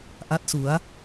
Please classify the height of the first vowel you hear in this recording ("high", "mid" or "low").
low